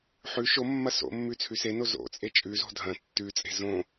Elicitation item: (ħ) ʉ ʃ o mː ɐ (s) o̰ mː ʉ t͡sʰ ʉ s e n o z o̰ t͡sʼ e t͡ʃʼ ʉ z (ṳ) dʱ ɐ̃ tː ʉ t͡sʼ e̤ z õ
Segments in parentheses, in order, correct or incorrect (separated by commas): correct, correct, incorrect